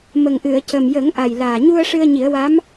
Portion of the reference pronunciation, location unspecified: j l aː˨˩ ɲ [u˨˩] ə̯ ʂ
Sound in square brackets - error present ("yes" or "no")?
yes